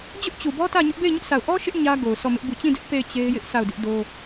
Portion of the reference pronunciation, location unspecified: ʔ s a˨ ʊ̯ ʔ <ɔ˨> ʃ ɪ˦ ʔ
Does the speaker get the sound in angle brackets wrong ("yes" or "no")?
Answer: yes